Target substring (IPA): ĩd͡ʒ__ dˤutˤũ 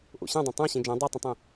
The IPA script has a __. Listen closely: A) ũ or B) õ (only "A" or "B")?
B